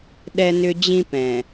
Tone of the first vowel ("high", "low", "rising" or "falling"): high